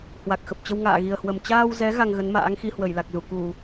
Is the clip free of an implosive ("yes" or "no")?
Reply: yes